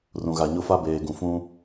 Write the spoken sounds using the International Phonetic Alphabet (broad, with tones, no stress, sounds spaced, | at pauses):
r ũ˨ ɣ a˨ ɲ ʊ˦ f a˦ b eː˨ ɡ ũ˨ f ũ˦